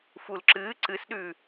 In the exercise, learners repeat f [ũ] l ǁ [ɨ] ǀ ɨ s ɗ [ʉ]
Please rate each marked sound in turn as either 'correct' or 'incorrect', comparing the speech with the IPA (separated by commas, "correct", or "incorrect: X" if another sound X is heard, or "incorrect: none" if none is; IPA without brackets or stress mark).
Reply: incorrect: u, incorrect: ɨː, correct